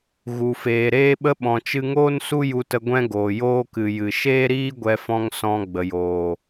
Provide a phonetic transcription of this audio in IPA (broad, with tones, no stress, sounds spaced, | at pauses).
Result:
ɣ u˨ f eː˨ ɾ eː˦ ɓ ə˦ ɓ ɔ̃˨ t͡ʃ ɨ˧ ŋ oː˦ n s u˦ j u˧ t ə˧ ɡʷ ɛ̃˦ ɡ oː˨ j oː˦ k ɨ˨ j ɨ˨ ʃ eː˦ ɾ iː˦ ɡʷ ɛ˧ f ɔ̃˧ ŋ s ɔ̃˧ ɡ͡b ə˨ j oː˨